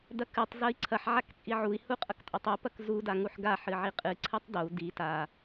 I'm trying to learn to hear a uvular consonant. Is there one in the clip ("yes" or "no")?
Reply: yes